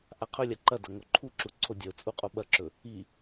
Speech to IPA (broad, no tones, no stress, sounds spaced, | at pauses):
ʔ a qʰ ɵ lʲ a ǃ ɐ d ɐ ŋ o ǃʰ u ǁ u ǀʰ o dʲ ɐ ʊ̯ t͡sʼ u qʼ o ɓ ɐ ǁ ɵ | i